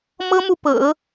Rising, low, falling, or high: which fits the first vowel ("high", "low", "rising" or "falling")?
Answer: high